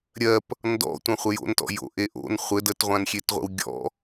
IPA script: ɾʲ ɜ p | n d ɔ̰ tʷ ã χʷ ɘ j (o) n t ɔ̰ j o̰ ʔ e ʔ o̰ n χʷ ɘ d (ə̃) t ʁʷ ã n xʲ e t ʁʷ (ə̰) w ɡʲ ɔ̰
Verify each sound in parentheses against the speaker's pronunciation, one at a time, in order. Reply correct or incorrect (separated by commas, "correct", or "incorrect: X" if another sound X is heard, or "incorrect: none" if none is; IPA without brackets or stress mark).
incorrect: o̰, incorrect: ə, correct